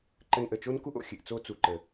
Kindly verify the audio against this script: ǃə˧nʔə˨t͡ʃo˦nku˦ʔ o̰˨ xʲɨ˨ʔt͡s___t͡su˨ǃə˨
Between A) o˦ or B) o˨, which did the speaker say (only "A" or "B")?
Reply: A